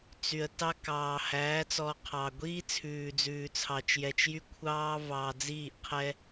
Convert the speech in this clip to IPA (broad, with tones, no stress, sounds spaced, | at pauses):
t͡s y˨ ə̯ t ɑ˦ k ɑː˨ h æː˨˦ t͡s ɔ˨ qʰ ɑ˨ ɡʷ iː˦ t͡sʰ ʉː˨ d͡z ʉː˨ t͡sʰ ɑ˨ t͡ʃ j ɛ˨ t͡ʃ j y˦ kʷʰ ɑː˦ v ɑː˨ d͡z iː˦˨ ʔ qʰ ɛ˦